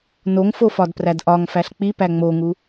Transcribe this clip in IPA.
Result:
noŋfofɒdpræd ʔɒŋfæɬ k͡pipæ ŋ͡moŋu

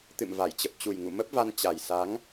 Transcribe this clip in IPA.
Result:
t̪ɨ̰˧˨mva˧˩jt͡ɕə˨˩p̚ t͡ɕu˨˩jŋṵ˧˨mə˦˥p̚va˧n t͡ɕa˨˩jsa˨˦ŋ

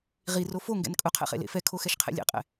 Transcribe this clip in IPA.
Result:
ʁiro foŋɡɛ̰n kʼʊqʰɛ̰χḛlḛ fɛkʰoxɛʃqʰḛ lʲḛqʼɛ̰

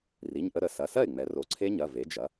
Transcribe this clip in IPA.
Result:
ri˩˧˩ɲʔə˧ ɾə˩˧ sɐ˩˧˩sɜ˥˩ɪ̯ŋ͡mɛ˩˧ ro˩˧ǀʰe˦˥ɲɐ˩˧˩ ve˩˥d͡ʒɐ˩˥

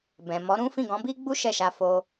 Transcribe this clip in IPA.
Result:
bɛ̃˨ mɔ˨˦ɾũ˦ fĩ˦˨ɡɔ̃˨˦bi˦ ɡ͡bu˦ʃɛ˦˨ʃa˧ fo˧

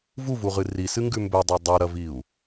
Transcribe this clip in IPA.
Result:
vuvuʁɨ risɨŋɡʉ mbɵdˤa dˤuɾɐviu̯

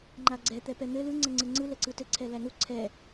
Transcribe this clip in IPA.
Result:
ŋ͡ǃaɡ͡ǀɛ t̪ɛpɛn̪ɘ lɯ ŋ͡ǀɛŋ͡ǀɯŋ͡ǀɯ lɛǀɯtɘ ǀʰɛlænu ǀʰɛ

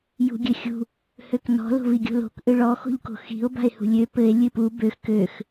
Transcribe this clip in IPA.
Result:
jṳɡʲɘxʲṳ | høknɔ̤ lo̤viɡʲo̤lo̤k ʔɨɭɔ xo̤ʎko̤xi̤o̯ ba̤e̯hṳlʲø pɘe̯ lʲɨpu bøx køx

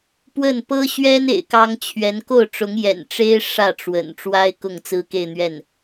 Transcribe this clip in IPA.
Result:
pwə˥˩n pɤ˥ɕɥɛ˥n ḛ˨˩ɪ̯kɑ˥ŋt͡ɕʰɥɛ˧˥n ko˥˩ʊ̯ʈ͡ʂʊ˧˥ŋjɛ̰˨˩n ʈ͡ʂe˥ɪ̯ ʂä˥˩ʈ͡ʂwə̰˨˩n ʈ͡ʂwa˥ɪ̯ kʊ˥˩ŋt͡sɹ̩˥ke˥˧ɪ̯n̪ɥɛ˥˩n

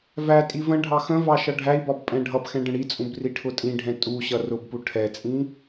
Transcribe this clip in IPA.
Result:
vætʼi və̃ ɖʱɑxə̃vɑ ʃʌɖʱæi̯bɒb pʼɛ̃ɖʱʌbxɛ̃ ɖə̃ɽit͡sʼũb riʈʰʊtʼĩɖʱɛ̃ tʼuɕʌ rʊbpu ʈʰɛt͡sʼĩ

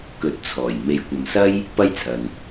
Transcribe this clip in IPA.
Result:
kɵ˨˥t̚t͡sʰɔː˨˩j me˨˧jkʷɐ˨m sɐ˥j | pɐ˥jt͡sʰɐ˨n

